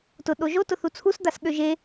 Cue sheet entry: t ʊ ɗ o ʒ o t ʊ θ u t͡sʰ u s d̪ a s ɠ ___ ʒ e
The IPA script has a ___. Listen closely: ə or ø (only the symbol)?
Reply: ø